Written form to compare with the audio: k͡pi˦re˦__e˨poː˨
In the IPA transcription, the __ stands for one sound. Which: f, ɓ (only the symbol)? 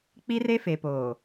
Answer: f